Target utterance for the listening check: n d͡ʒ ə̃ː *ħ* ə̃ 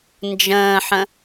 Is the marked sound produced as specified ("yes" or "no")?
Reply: yes